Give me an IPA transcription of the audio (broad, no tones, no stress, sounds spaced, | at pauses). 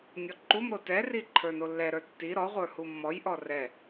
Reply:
nʲ ɔ ǃ u m ɾ o t ɛ r i ǃʰ ə˞ n o lː ɛ ɾ ə˞ tː i ɾ ɔ ʁʷ ə˞ h u mː ɔ j ʔ ɔ r ɛ